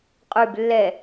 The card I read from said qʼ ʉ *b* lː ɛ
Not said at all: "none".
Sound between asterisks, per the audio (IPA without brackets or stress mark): b